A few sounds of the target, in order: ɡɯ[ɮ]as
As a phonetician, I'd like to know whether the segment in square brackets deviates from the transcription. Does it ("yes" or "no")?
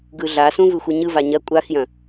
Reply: no